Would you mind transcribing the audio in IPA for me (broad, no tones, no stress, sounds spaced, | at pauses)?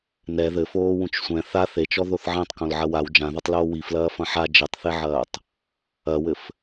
n ɛ ð ɘ f oː w ũ t͡ʃ sʷ ɛ̃ θ a θ e t͡ʃ ɔ ð o θ ʕ ɛ̃ tˤ k õ l ʕ ɐ w a w d͡ʒ ã ð a tˤ l oː w i f l ɐː f ɐ̃ ħ a d͡ʒ ɘ tˤ θ e ʕ ɐː tˤ | ɐ w ɘ f